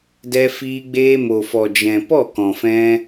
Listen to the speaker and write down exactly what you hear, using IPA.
d ɛ˧ f iː˧ ɡ͡b eː˧ m o˨ f ɔ˨ d͡ʒ ɛ̃˨ p ɔ˦˨ k ɔ̃˨ f ɛ̃˧

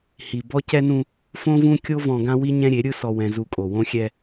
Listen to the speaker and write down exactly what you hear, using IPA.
h i˨ b ɔ˦ c ɛ˦ n ũ˦ | f õ˦ v ũ˦ kʲ o˦ v ɔ̃˨ ɡ ã˦ w i˦ ɲ ɛ̃˦ ɾʲ e˨˦ ɾʲ ɯ˦ s ɔ˨ w ɛ̃˨ z u˨ kʼ o˨ w õ˦ xʲ ɛ˦

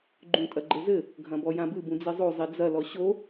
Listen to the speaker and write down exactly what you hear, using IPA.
ɡ͡ǃ ũ tʼ ɐ ɡ͡ǃ ɘ z ɘ | ɡʱ ɐ̃ b ɔ j ã b ɨ b ũ d͡z e zˤ o zˤ i d͡z ɐ l ɔ ɕ o

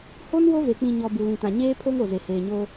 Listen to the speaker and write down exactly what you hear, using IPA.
h o˦ n w o˦ v e˨ k͡p ĩ˨ ɲ ɔ˨ b u˨ l ĩ˨ t ã˨ ɲ eː˦ pʰ o˦ ŋ o˨ z e˨ h eː˨ ɲ o˦

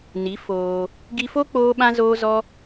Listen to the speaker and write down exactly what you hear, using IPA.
n i˨˦ f oː˧ | ɡ i˧ f o˦ k͡p oː˦ ɓ ã˦ z oː˦ z ɔ˦

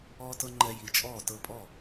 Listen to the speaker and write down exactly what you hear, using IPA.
ɔː˧ t ɤ˧ ŋ͡ǃ ɛ˧ j i˨˩˦ t͡ʃʼ ɔː˥˩ t ɤ˥˩ pʼ ɔ˥˩

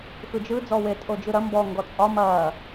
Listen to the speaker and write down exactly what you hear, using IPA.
x ɯ d͡ʒ ɯ d͡z ɔ w e tʼ o d͡ʒ ɯ ɾ ɐ m b ɔ ŋ ɡ ɔ t͡sʼ ɒ m ɐː

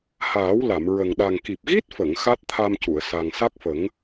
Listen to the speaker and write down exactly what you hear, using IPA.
h aː˨˩˦ w l a˨˩˨ m ɹ ə˨˩ ŋ ɗ a˨˩ ŋ k i˨˩ p̚ ɣ i˦˥ t̚ f ə˨˩˨ ŋ x a˦˥ t̚ t̪ʰ a˧ m c u˨˩˨ ə̯ s a˨˩ ŋ s a˦˥ k̚ f ə˨˩˦ ŋ

